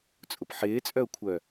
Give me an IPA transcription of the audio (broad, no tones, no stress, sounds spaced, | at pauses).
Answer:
t͡sʼ ʊ p ħ ɪː t͡sʼ œ ʊ̯ kʷʰ œ